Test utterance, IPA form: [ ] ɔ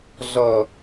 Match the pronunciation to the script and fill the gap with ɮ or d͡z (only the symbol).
ɮ